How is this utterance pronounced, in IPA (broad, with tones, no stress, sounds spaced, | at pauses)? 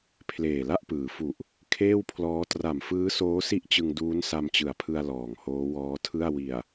pʰ l eː˨˩ l a˥˩ ʔ p ɯː˩˦ f u˨˩ ʔ | kʰ eː˥˩ w pʰ l ɔː˦˥ t r a˨˩ m f ɯː˦˥ s oː˦˥ s i˥˩ ʔ t͡ɕ ɯ˧ ŋ d uː˦˥ n s a˧ m t͡ɕ ɯ˩˦ a̯ pʰ ɯ˧ a̯ l ɔː˨˩ ŋ h oː˦˥ w ɔː˦˥ tʰ ɯ˥˩ a̯ w i˨˩ a̯